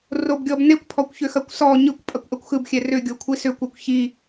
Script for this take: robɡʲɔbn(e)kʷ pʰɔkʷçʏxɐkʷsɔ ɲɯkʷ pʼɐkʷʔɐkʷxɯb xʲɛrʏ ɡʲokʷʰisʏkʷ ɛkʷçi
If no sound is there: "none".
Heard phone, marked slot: e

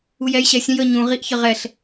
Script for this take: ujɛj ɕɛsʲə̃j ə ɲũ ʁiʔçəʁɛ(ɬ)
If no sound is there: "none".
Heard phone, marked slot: ɬ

